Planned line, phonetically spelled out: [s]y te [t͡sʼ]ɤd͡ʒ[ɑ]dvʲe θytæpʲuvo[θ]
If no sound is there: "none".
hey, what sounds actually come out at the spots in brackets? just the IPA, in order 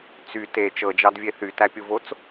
t͡s, t͡ʃ, ɑ, t͡s

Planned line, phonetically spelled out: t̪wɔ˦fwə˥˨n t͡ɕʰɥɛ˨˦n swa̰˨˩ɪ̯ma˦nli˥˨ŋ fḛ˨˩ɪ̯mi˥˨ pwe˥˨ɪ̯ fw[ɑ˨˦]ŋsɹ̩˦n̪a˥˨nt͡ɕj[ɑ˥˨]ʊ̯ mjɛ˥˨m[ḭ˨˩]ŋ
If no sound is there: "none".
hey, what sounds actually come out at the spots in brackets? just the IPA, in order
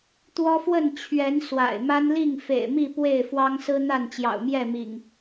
ɑ˦, ɑ̰˨˩, ḭ˨˩

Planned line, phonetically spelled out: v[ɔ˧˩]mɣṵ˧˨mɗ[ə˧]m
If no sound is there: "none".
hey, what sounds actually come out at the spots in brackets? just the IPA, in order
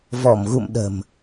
ɔ˧˩, ə̤˨˩

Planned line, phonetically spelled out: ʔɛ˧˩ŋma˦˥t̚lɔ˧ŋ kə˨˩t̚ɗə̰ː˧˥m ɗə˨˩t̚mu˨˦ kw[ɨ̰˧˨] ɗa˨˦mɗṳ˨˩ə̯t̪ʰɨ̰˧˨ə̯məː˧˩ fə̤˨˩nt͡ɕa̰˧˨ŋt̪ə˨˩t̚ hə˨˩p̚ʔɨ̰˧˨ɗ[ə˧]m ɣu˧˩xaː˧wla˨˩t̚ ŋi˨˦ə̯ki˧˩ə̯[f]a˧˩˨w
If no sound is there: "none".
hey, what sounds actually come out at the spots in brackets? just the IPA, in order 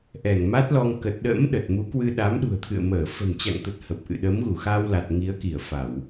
ɨ˧, ə˨˦, f

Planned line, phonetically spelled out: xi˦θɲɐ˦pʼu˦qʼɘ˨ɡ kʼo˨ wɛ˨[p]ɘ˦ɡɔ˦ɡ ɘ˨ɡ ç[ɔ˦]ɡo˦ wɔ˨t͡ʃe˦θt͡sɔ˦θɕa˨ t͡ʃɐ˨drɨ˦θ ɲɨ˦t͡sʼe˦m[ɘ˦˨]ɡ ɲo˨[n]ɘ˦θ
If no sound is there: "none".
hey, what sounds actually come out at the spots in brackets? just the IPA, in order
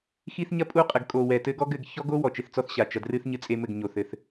t, ɔ˦, ɘ˦˨, θ

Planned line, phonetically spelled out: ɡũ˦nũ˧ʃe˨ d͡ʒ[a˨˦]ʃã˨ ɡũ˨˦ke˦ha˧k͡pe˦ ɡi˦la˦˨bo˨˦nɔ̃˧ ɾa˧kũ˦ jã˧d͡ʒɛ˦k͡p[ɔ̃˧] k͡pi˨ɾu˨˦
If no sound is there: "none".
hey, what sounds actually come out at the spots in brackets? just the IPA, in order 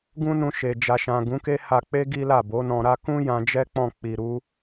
a˨, ɔ̃˦˨

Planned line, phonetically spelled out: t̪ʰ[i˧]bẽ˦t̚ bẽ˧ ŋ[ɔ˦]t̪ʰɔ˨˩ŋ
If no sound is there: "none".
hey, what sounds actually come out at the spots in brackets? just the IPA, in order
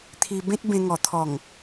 i˧, ɔ˨˩

